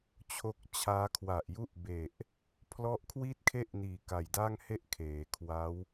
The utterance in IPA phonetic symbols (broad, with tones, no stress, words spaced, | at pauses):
t͡ɕʰo˦˥k̚t͡ɕʰaː˦˥ kʰwa˨˩ʔju˥˩ʔbe˨˩ʔ | pʰlɔ˦˥ʔkʰwi˥˩t̚kʰe˥˩ʔniː˨˩ ka˨˩jda˥˩ŋhe˥˩ʔ kʰeː˩˦kʰwa˦˥w